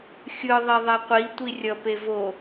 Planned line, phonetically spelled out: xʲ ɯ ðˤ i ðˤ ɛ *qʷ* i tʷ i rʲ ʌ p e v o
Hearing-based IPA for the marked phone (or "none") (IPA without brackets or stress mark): qʷ